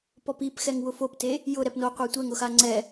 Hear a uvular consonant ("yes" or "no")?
yes